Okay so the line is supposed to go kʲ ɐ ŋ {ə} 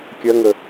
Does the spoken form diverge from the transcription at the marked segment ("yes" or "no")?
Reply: no